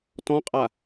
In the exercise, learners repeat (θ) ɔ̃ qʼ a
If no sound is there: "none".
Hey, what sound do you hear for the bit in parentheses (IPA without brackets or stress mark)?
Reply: t